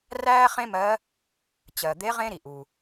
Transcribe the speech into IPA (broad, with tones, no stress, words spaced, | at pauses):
ræː˥χẽ˥mɜ˧˥ | t͡ɕɜ˩d̪e˧˥ ʁẽ˥ɾi˩ ʔu˩